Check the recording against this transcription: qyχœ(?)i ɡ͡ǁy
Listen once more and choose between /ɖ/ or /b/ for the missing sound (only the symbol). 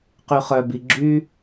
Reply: b